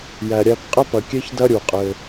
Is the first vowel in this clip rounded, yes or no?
no